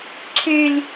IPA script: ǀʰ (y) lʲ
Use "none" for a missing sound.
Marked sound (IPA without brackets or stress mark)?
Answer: y